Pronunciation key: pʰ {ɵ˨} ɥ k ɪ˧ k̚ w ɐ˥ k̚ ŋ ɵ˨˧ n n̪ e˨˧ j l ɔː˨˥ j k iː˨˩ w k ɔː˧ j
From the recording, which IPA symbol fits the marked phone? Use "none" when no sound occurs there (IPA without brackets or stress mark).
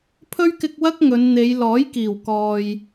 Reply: ɵ˥